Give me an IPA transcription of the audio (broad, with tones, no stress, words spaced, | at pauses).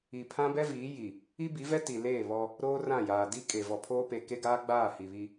i˨pʰã˦ bɛ˦viː˨˦ji˨ | i˦bi˨˦vɛ˦ ti˨leː˦˨ βɔ˦ | ɾoː˦ rã˦˨ jaː˨di˦kʼe˨ vɔ˨pʰoː˦pe˨ ke˦ɡaː˦ɡ͡baː˦˨ hi˨βi˦